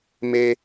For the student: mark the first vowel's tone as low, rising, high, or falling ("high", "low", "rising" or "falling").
high